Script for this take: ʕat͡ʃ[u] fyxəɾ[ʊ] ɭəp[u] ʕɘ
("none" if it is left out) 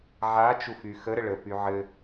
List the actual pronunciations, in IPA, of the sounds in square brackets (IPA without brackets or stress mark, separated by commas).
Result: u, ə, y